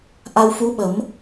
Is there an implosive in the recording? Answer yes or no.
yes